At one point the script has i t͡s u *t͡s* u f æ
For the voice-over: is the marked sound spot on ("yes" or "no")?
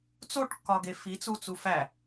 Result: yes